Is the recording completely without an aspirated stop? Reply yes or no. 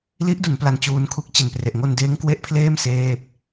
no